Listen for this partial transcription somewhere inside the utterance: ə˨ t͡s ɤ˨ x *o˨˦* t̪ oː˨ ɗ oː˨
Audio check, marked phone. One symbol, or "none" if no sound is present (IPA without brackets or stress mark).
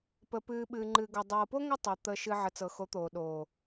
o˨˦